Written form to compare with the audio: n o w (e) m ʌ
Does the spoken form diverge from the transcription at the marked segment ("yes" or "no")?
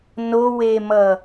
no